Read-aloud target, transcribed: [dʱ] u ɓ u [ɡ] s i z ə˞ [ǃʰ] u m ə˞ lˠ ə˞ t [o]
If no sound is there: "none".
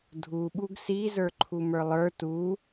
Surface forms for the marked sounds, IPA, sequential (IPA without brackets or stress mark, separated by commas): dʱ, ɡ, ǃʰ, u